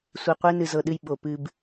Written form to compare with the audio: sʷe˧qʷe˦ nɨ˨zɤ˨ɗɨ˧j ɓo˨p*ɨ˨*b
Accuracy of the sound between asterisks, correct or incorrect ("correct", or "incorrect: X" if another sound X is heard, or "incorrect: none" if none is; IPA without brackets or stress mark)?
incorrect: ɨ˧